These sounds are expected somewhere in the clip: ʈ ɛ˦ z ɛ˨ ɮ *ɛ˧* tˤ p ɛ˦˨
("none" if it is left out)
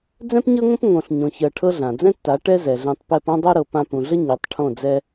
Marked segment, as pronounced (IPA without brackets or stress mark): ɛ̃˧